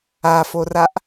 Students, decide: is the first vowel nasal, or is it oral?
oral